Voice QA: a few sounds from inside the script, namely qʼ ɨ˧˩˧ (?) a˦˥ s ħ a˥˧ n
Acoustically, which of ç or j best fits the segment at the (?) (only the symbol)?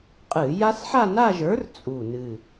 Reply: j